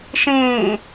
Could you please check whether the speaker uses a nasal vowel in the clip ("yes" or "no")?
yes